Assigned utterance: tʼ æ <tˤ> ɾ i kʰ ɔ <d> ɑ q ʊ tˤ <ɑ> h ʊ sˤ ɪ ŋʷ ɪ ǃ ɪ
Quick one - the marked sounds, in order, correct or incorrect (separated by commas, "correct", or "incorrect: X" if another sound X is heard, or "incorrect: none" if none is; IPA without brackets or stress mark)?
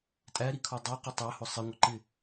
incorrect: none, incorrect: dˤ, correct